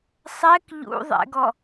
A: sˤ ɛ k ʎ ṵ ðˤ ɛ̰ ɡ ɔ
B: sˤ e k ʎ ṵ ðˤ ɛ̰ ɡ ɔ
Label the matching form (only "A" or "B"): A